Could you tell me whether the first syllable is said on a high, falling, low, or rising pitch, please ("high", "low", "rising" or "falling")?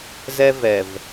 high